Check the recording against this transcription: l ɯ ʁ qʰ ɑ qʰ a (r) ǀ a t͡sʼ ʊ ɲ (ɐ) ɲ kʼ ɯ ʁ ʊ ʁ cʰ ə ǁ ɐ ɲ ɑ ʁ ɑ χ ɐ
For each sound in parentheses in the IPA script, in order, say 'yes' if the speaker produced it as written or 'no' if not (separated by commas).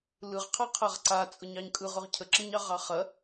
no, no